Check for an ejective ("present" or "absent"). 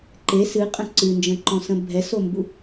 present